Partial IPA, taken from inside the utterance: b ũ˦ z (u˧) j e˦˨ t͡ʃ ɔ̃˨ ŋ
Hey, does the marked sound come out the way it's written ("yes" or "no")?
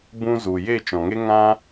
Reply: no